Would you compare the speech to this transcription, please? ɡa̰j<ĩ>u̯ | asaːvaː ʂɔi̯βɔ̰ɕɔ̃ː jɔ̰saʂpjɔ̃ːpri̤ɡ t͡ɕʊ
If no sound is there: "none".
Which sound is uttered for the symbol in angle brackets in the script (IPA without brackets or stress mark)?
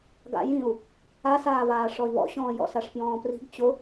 ĩ